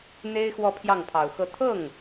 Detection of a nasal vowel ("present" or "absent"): absent